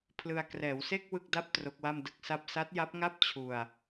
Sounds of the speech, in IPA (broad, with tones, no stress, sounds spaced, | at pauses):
pʰ l ɯ˧ a̯ k r ɛː˩˦ w s e˥˩ k̚ w ɯ˥˩ k̚ d a˥˩ p̚ t r o˦˥ k̚ w a˥˩ m d ɯ˥˩ k̚ s a˥˩ p̚ s a˦˥ t̚ j a˦˥ p̚ ŋ a˥˩ p̚ t͡ɕʰ u˧ a̯